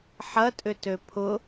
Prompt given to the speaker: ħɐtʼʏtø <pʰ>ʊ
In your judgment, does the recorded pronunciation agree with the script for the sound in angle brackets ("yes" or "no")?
yes